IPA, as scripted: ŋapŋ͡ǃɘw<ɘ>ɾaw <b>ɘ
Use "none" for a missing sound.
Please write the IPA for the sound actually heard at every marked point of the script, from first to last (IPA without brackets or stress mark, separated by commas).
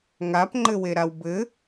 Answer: e, b